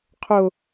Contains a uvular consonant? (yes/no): yes